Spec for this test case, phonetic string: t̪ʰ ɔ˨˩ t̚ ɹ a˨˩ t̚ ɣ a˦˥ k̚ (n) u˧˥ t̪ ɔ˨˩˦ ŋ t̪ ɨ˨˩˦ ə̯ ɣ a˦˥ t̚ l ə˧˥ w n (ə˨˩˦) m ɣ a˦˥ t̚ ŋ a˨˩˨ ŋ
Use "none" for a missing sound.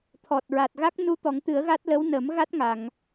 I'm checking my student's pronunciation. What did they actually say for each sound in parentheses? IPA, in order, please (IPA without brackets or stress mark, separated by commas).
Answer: n, ə˨˩˦